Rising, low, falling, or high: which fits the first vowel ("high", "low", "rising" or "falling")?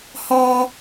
high